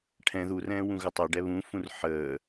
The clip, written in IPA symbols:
ʈʰ ɛ̃ ð u r ɛ̃ː w ũ ɣ ə tˤ ɛ ɖ ɛ β ũ f ũ r ħ əː

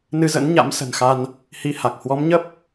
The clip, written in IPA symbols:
n ɨ˧ z ə̰˧˥ n ɲ a̰˧˥ m s ə̤˨˩ n x a˧ n | h i˨˦ h a˨˩ k̚ h w ɔ˨˦ m ɲ ə˦˥ p̚

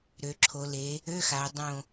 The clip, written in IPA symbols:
ɾ ø˩˧ ǁʰ o˩˧ l e˩˧ | ø˧˥˧ x a˩˧ ʊ̯ dˤ õ˧˩

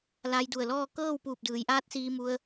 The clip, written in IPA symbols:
l a˧ j d u˧˩ ə̯ l ɔː˥˨ k ɤː˥˨ w p uː˧˩ p̚ d ɯː˩˧ j ʔ aː˧˥ t̚ s iː˧ m u˧ ə̯

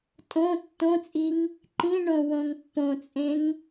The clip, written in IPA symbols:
tʼ õ tː õ t͡sʼ i ŋ | ǃ ĩ ɳ õ w õ ŋ pː õ t͡sʼ ẽ ŋ

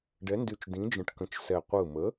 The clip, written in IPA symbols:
ɖ ɛ˨˥ n d y˧˩ t͡ʃ d ĩ˨˥ d͡ʒ ə̃˧˩ ʈ k ə̃˧˩ t͡ʃ s ɛ˧˩ qʷ ɯ˧˩ m ə˨˥

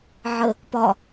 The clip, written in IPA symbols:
ʕ ə | p ɒ

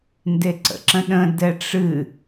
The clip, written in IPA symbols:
n d e ǀ ə̰ ǁ ə̃ ɗ ə̃ d ɛ ʈ͡ʂ ɨ

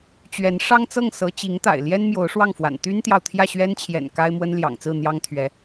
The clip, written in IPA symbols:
t͡ɕ ɥ ɛ˧˥ n ʂ ɑ˥ ŋ t͡s ɤ˥˩ ŋ s ɤ˧˥ t͡ɕ i˧˥ ŋ t̪ a̰˨˩ ɪ̯ l j ɛ˥ n m j o˧˥ ʊ̯ ʂ w ɑ˥˩ ŋ f w a̰˨˩ n t̪ y˥ n t̪ j ɑ˨ ʊ̯ t̪ʰ j ä˥˩ ɕ ɥ ɛ˥ n t͡ɕʰ j ɛ̰˨˩ n k a˥ ɪ̯ m w ə˥ n l j ɑ̰˨˩ ŋ t͡s ɹ̩˥˩ n̪ j ɑ˥ ŋ t̪ʰ ɥ ɛ˧˥

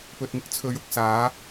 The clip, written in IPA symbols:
p ɵ˨ t̚ ŋ ɪ˥ k̚ t͡sʰ ɵ˨˧ ɥ ʊ˨ k̚ s aː˨˥

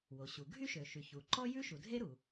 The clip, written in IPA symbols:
w o˩ ɕ u˩ ɡʱ y˥ ʃ ø˩ ʃ y˩ ç u˩ ǃ ɔ˥ j ʉ˥ ʃ u˩ dʱ e˥ ɾ u˩

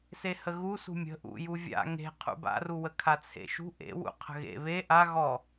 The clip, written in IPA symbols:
s e h ə ɣ u s ṳ mʲ ə̤ ʔ ṵ j u vʲ a̰ ŋ e̤ qʰ ṵ b a̰ r u w ə kʰ a t͡sʰ ḛ ʃ ṳ ʔ ḛ w ṵ qʰ ə̤ ɣ ḛ β e ʔ a ɣ ɔ

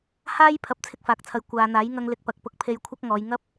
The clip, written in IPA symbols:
h aː˥ j pʰ ɐ˨˥ p̚ t͡sʰ ɪ˧ k̚ f aː˨ k̚ t͡sʰ ɐ˨ j kʷ aː˨ n̪ aː˨˥ j ŋ ɐ˧ ŋ l ɪ˨˥ k̚ p ɐ˨ k̚ p ʊ˧ k̚ pʰ e˧ j kʷʰ ɐ˥ k̚ ŋ ɔː˨˧ j ŋ ɐ˥ p̚

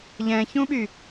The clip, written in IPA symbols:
ʎ ɛ̃ ç ũ ɓ y

